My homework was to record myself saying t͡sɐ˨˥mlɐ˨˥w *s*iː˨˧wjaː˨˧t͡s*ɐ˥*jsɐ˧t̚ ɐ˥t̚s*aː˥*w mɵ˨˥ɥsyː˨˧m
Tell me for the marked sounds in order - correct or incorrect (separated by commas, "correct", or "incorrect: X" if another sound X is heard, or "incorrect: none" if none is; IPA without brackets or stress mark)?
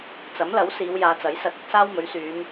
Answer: correct, incorrect: ɐ˨˥, correct